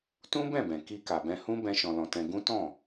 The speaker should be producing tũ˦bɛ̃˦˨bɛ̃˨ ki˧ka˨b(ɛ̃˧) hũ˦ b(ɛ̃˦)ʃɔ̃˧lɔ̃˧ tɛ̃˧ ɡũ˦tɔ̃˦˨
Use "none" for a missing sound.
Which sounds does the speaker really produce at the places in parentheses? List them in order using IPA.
ɛ̃˧, ɛ̃˦

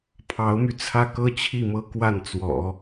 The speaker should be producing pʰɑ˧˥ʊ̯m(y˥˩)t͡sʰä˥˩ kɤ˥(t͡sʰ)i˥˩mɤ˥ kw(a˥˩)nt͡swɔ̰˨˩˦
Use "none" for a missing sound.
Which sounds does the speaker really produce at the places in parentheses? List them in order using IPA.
y˧, t͡ɕʰ, a˥˩

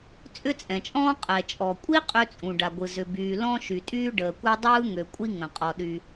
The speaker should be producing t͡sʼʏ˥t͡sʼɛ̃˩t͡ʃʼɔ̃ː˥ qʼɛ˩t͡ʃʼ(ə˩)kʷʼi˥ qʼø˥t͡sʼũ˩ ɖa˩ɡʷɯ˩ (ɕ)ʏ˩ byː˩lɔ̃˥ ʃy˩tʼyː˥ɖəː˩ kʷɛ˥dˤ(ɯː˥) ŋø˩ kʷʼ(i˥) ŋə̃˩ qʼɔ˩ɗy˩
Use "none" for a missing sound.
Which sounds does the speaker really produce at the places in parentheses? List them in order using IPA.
ɔ˩, z, ɯː˥, i˥

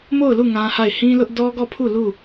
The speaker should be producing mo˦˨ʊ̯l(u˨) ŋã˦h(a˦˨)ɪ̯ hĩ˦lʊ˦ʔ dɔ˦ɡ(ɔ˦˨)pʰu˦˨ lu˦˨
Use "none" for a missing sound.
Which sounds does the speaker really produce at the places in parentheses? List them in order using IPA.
u˦˨, a˦˨, ɔ˦˨

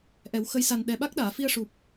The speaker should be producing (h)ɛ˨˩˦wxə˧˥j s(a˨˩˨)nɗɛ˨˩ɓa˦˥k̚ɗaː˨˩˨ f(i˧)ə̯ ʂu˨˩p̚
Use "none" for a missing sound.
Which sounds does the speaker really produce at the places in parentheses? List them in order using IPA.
ʔ, a˨˩, i˧

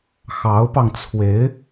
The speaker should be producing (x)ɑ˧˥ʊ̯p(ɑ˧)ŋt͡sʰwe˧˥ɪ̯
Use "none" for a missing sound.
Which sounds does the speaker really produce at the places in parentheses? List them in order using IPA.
x, ɑ˧

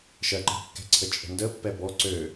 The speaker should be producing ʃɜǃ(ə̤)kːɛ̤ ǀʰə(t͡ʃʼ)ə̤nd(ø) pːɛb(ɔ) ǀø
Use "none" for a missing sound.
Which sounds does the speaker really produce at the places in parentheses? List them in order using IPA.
ə̤, t͡ʃʼ, ə, ɔ

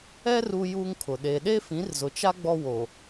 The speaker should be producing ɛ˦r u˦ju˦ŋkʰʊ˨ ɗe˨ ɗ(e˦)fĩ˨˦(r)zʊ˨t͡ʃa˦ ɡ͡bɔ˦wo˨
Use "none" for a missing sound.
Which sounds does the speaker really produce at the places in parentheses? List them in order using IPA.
e˦, r

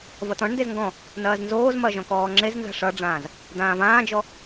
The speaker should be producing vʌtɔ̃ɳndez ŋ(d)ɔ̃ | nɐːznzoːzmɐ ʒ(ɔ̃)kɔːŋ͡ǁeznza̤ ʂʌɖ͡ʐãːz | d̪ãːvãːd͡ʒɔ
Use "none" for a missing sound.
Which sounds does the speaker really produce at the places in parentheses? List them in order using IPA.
ɡ, ɔ̃

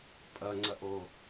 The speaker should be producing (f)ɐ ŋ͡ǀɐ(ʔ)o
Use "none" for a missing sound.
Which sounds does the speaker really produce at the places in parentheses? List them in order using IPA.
pʼ, ʔ

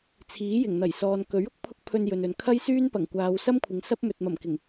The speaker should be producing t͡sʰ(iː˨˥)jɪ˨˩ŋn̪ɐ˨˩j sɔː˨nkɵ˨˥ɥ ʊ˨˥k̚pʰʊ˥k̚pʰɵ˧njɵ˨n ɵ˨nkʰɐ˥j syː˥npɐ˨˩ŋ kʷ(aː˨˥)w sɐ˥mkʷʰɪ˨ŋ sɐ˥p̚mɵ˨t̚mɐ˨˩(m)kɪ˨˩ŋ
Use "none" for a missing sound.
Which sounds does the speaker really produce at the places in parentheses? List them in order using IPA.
iː˨˥, aː˨˧, m

